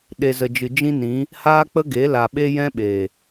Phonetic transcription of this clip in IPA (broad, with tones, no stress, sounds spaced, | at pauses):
ɗ e˨ z ə˨ d͡ʒ ɨ˨ d͡ʒ ĩ˦ n ĩ˨˦ | h aː˦ k͡p ə˦ ɡ e˨˦ l a˨ ɓ e˧ j ɛ̃˦ ɓ eː˨